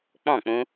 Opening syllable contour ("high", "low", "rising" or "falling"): falling